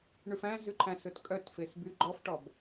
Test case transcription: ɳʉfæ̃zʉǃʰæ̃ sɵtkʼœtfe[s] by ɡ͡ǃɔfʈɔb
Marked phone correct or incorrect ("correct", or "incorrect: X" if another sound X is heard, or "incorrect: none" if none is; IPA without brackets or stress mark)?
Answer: correct